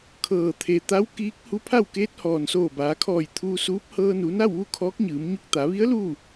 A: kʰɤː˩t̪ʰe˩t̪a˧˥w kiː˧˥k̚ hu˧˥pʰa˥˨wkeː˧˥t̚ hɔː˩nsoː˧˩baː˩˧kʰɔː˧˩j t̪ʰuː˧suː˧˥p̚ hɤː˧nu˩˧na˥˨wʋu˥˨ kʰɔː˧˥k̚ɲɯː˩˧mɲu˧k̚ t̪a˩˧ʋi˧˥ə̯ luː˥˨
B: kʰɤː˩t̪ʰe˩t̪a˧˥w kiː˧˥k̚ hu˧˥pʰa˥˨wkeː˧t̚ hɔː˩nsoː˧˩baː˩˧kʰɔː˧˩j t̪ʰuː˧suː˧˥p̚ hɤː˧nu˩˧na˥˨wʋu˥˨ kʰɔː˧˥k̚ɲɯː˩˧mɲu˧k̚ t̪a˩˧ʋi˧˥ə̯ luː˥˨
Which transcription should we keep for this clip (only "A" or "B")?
A